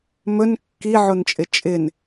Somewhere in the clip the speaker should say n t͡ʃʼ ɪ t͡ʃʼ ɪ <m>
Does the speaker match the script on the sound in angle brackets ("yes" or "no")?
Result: no